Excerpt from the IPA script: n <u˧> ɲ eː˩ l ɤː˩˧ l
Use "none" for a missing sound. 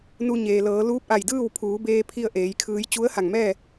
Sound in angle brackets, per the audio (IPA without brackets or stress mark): u˧